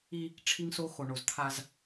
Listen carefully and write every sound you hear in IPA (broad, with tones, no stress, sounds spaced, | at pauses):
i˦ | ʈ͡ʂʰ i˦ ŋ s o˦ x o˨ ɳ o˨ z t̪ʰ a˦ z